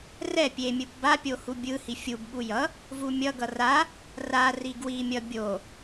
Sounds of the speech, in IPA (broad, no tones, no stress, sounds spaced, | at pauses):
r ɛ pʲ e mʲ ɯ p b a pʲ o h u bʲ ɯ h i fʲ u b ɠ u j ʌ | v u mʲ ʌ ɡ ʌ r a | r a r i ɡ w i mʲ ʌ bʲ o